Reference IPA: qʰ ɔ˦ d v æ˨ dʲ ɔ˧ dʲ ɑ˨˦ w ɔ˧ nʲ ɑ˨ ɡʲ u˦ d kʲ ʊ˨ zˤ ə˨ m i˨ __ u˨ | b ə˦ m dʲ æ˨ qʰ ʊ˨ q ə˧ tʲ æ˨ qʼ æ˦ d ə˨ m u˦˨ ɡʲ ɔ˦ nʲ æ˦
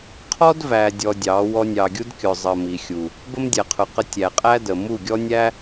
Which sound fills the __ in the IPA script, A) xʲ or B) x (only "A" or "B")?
A